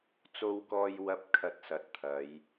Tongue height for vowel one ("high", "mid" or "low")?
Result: mid